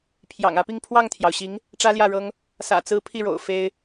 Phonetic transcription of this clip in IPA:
pʰjɑ̰˨˩ŋä˧˥pi˥˧ŋ pʰwɑ˥˩ŋt̪ʰjɑ˩ʊ̯ɕi˧˥ŋ | ʈ͡ʂä˥ljä˥˩ɻɤ˥ŋ | sä̰˨˩t͡sɹ̩˧˥ pʰi˥˩ɻo̰˨˩ʊ̯ fe˥ɪ̯

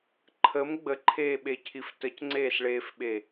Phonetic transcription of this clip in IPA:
ǃʰəm ɡ͡bəǃʰeːɓecʰif təcŋ͡ǀeːsɭeːfɓe

